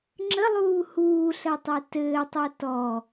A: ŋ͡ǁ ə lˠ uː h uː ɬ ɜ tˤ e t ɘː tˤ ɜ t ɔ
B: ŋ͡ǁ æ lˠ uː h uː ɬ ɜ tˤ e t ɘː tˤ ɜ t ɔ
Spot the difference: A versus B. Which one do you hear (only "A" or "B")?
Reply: A